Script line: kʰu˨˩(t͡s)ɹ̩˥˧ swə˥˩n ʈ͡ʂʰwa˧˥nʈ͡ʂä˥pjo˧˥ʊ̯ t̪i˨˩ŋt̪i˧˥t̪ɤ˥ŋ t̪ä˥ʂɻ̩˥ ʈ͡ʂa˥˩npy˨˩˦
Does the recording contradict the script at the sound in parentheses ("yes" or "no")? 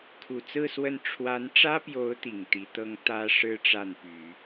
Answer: no